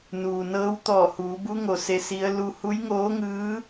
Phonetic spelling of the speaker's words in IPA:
n uː˩ n ɤː˧˥ w t̪ ɔː˧˩ h uː˩˧ b u˧˥ ŋ o˩ s e˧˥ s i˧˥ ə̯ l u˧ h u˧˥ j ŋ oː˧˥ ŋ ɯː˧˥

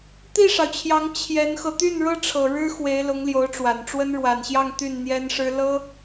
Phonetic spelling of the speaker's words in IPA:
t̪ i˥˩ ʂ ɑ˩ ʊ̯ t͡ɕʰ j ɑ˧˥ ŋ t͡ɕʰ j ɛ˧˥ n x ɤ˧ t̪ y˥˩ n ɻ ɤ˥ ʈ͡ʂʰ ɤ˨˩ ɻ ɻ̩˥ x w e˧˥ ɪ̯ l ʊ˧˥ ŋ l j o˧˥ ʊ̯ ʈ͡ʂ w a˨˩ n ʈ͡ʂ w ə˥ n ɻ w a˨˩ n ɕ j ɑ˥˧ ŋ t̪ y˥˩ n n̪ j ɛ˥ n ʂ ɻ̩˥ l ɤ˥

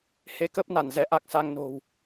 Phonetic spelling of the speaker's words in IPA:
h e˨˦ k ə˦˥ p̚ n a˧˩ n z ɛ˧ ʔ a˦˥ k̚ s a˧ ŋ n o̤˨˩ w

